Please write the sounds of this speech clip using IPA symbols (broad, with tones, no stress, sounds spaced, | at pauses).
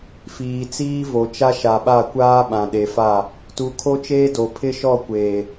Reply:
f iː˨ t͡s iː˦ v o˨ t͡ʃ a˦ ʃ a˨ ɓ a˦˨ kʷ aː˦ ɓ ã˨ ɗ e˨ f a˦˨ | t u˨ kʰ o˦ t͡ʃ eː˦ d o˨ pʰ ɪ˦ ʃ ɔ˦˨ kʷ eː˨